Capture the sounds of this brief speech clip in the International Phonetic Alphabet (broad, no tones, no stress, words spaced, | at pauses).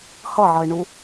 hʌʕʌɪ̯ɳu